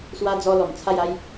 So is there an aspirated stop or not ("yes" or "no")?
yes